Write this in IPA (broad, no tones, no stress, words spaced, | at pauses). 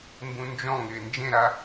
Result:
mbũnd͡ʒɔ̃ŋɪː nd͡ʒẽɾa